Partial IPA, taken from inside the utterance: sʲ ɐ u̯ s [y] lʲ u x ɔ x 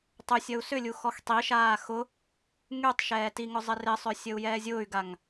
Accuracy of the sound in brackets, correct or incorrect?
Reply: incorrect